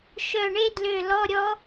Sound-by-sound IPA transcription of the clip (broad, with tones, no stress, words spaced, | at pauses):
ʃœ˧˩ɳe˦˥dlø˧˩lɔ˧˥˧ ɾʲɔ˦˥